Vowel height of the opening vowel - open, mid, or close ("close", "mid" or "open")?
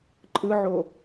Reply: close